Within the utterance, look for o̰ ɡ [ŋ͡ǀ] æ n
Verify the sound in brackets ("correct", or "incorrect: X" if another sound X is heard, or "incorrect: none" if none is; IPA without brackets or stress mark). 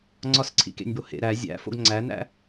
correct